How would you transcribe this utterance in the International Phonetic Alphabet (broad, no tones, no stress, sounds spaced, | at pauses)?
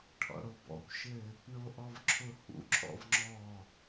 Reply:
ʈʰ ɔ̰ ɽ o b ɔ̰ kʷ ʃ ɘ | ɳ o ʔ ɔ v ǁʰ ʊ h ṵ ǁʰ ɔ̰ v ŋ͡ǁ ɔ